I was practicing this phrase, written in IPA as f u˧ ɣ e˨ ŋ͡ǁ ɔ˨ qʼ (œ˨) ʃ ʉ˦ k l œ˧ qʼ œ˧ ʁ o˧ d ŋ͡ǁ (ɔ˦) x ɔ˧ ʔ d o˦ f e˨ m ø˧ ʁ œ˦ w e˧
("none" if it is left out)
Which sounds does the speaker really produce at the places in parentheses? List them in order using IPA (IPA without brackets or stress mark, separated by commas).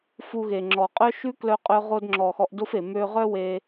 œ˦, ɔ˨